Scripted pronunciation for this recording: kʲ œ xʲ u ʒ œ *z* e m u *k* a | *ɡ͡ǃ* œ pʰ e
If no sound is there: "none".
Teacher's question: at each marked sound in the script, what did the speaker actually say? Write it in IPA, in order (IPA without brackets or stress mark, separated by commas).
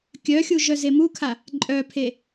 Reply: z, kʰ, ǃʼ